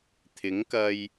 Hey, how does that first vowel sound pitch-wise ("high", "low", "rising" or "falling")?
rising